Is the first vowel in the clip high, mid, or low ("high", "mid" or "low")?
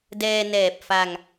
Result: mid